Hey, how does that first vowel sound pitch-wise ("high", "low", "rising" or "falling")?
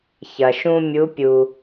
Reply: low